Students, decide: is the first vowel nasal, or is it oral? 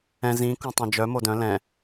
nasal